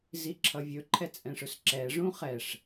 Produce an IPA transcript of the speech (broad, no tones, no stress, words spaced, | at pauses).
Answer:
ziǁʰʌvʲɵ ǃʰɛt͡sʼɛ̃ʂɵsǁɛ ʐũχɛʂ